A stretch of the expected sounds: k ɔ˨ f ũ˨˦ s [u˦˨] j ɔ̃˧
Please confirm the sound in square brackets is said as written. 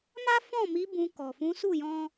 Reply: yes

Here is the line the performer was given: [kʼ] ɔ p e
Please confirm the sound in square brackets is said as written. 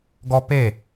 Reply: no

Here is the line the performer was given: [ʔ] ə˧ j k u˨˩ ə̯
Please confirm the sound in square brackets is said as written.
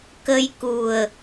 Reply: no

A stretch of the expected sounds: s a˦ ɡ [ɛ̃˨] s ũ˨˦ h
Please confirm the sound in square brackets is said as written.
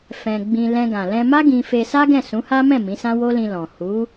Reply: no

